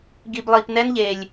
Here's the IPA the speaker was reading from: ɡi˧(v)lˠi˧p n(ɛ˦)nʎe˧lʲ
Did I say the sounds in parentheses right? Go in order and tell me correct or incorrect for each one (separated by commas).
incorrect, correct